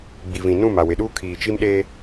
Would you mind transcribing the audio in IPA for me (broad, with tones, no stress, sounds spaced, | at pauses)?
ɡ͡b i˨ v ĩ˨ n ũ˦˨ m a˨ w ɪ˨ ɗ uː˦ kʰ iː˨ t͡ʃ i˦ m ɗ e˦